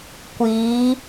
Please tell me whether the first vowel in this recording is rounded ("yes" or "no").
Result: no